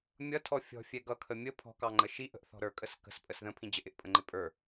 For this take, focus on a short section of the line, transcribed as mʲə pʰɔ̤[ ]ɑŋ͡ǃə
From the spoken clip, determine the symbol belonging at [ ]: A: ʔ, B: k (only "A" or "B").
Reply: B